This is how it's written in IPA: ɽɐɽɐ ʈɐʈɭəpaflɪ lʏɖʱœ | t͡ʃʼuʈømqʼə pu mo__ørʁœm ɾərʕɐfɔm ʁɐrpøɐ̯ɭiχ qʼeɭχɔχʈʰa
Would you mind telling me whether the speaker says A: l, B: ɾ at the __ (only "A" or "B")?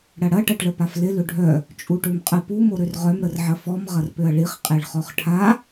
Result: B